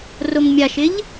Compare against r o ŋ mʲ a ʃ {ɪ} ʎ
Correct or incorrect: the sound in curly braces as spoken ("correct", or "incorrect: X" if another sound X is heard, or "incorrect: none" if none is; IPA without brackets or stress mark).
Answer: correct